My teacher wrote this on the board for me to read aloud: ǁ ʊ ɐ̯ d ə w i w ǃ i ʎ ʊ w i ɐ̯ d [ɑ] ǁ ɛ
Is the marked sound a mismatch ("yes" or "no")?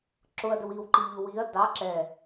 no